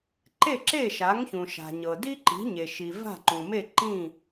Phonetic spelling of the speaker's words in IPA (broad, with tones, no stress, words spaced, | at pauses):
ǃe˥˩ǁe˥˩ʃa˩˥ŋçũ˩ ʃa̤˩ɲɤ˩di˥ ǃi̤˩˥ɲe˩ʃi˩ va̤˥˩ǃũ˩me˥˩ ǃĩ˥˩